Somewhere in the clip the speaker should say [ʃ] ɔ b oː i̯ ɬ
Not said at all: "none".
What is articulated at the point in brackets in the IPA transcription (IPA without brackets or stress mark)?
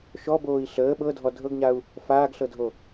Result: ʃ